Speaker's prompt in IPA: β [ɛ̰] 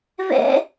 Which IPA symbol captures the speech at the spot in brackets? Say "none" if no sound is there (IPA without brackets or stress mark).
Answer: ɛ̰